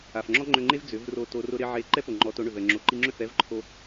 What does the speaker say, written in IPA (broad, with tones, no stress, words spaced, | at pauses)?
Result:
a˨fŋ͡ǁɔ˦ŋ͡ǃʏ˧ŋ͡ǃe˦v d͡zʏ˨˦vro˧to˧ rʊ˧ ɾɪ˧ ʕe˧ ǃɛ˦po˨ ŋ͡ǃɔ˨˦to˨˦ɳʏ˨v ɛ˨ŋ͡ǁo˨ǃi˧ŋ͡ǁʏ˦˨f ɛ˦vǃʰo˧